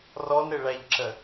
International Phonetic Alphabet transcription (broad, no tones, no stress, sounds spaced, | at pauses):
r ɔ n ɾ ɪ ɭ æ ʎ ǁ ə